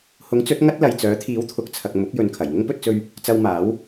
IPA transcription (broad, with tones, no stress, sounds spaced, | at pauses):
h ʊ˨˥ ŋ t͡s ɵ˨˥ t̚ ŋ ɐ˥ t̚ l ɐ˨ j t͡s œː˨˥ t̪ʰ iː˨˥ w t̪ʰ ʊ˨ k̚ t͡sʰ ɐ˨ k̚ m ʊ˨˥ k̚ j ɵ˨ n kʰ ɐ˨˩ j ŋ ʊ˥ ŋ p ɵ˧ t̚ t͡s ɵ˧ ɥ | t͡s ɐ˧ w m aː˨˥ w